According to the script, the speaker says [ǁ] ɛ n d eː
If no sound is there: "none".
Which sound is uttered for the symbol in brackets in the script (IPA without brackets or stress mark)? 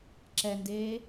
ǁ